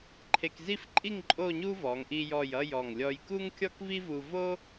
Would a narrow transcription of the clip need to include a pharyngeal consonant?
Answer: no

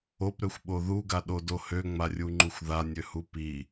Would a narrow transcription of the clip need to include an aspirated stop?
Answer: no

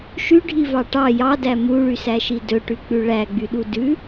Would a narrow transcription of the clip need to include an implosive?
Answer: yes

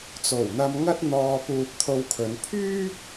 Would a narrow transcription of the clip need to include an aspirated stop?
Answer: yes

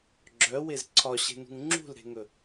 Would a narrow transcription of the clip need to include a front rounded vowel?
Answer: yes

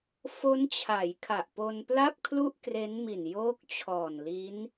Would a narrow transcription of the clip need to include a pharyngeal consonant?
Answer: no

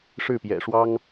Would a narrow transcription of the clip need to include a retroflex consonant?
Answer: yes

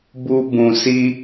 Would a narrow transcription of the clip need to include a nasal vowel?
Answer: yes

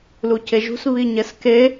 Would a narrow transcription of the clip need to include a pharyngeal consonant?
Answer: no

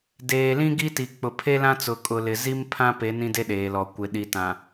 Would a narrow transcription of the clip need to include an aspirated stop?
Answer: yes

